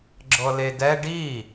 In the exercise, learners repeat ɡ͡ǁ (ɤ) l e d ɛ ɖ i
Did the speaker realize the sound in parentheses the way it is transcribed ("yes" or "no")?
yes